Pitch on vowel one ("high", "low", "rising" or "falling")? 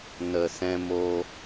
low